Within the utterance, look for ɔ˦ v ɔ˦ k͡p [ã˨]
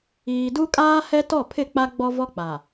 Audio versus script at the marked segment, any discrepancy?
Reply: yes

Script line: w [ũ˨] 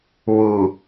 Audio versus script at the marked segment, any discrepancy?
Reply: yes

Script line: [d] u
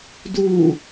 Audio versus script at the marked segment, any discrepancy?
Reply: no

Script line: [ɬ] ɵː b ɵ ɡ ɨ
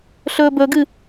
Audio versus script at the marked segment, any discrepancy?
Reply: no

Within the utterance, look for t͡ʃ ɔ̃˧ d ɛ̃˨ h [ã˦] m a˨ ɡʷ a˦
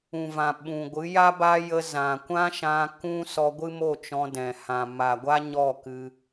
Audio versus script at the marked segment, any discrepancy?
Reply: yes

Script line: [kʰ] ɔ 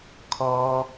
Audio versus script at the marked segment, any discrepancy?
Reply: no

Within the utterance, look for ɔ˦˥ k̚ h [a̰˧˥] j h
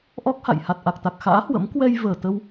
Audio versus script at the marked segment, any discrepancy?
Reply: yes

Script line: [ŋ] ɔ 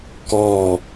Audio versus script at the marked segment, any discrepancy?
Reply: yes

